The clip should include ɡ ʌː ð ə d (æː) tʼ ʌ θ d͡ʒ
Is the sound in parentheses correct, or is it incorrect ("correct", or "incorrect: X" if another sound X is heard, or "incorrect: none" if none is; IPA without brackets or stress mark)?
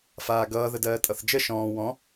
incorrect: ɜː